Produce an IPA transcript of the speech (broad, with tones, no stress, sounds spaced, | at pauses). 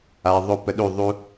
a˨ ðˤ o˧ p ə˧ ɗ u˦˨ ðˤ u˦